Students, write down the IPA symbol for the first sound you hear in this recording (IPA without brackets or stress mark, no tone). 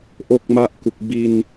ʔ